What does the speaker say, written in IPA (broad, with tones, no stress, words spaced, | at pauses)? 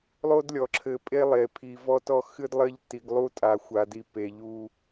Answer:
lˠo˦dlʲɔ˨ǁʰɘ˨ pʼe˦lˠe˨pʰi˨ vɔ˦tɔ˦ xɨ˦dlˠɘ˦ʎ ti˨ɡlˠu˦tʼa˨ xʷa˨di˨ pe˨ʎu˦